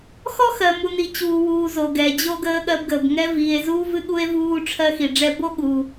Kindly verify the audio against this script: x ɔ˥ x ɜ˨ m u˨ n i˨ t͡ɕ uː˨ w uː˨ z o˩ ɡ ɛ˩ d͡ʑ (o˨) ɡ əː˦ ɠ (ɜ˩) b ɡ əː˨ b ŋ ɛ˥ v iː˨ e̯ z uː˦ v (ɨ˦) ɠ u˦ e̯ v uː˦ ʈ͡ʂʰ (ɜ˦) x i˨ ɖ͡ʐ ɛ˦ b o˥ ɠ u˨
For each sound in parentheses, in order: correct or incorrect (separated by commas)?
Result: incorrect, incorrect, correct, correct